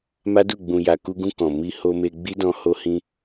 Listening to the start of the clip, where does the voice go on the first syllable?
high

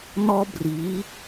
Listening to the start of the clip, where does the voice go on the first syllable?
high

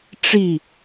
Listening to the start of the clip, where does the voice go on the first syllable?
falling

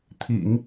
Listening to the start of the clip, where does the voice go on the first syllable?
low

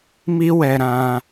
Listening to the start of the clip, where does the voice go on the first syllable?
high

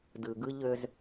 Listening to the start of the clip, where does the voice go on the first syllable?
low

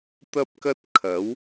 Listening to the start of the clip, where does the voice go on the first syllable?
high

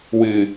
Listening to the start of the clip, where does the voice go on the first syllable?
low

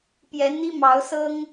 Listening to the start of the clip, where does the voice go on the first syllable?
rising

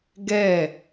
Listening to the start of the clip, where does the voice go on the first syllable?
falling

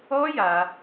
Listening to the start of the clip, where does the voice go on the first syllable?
high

